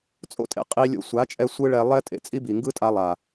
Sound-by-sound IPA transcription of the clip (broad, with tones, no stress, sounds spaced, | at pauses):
t͡sʼ o̰˦ tʼ ḛ˧ qʼ i˧ lʲ o̰˧ sʷ a˨˦ t͡ʃʼ ɛ˧ sʷ ɯ˦ ɭ ɛ˧ lˠ ɛ˦ tʼ ḛ˦ t͡sʼ i˦ b i˨ ŋ ɡ ɯ˦ tʼ a˧ lˠ a˨